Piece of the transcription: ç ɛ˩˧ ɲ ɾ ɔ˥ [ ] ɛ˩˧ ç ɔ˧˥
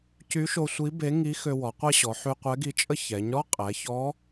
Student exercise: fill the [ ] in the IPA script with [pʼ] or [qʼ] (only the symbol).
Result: qʼ